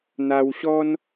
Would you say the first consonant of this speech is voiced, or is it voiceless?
voiced